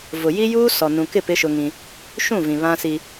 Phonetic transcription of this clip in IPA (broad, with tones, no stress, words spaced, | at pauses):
vʊ˨ji˦juː˦ sɔ˨nũ˨kɪ˦˨ pɪ˦ʃʊ˦ŋĩ˦ | ʃũ˦˨vĩ˨ βã˦si˦